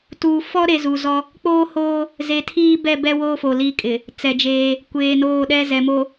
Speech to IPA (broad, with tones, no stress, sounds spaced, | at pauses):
t uː˨ f ɔ˦ ɾ e˨ z u˨ z ɔ˦ | k͡p oː˦ h oː˦ | z e˨ tʰ iː˦ b ɛ˦˨ b ɛ˦ w oː˦ f o˨ l i˦˨ kʼ ɪ˨ | t͡s ɛ˨ d͡ʒ eː˦ | kʷ eː˨ n oː˦˨ ɗ ɛ˦ z ɛ˨ m o˨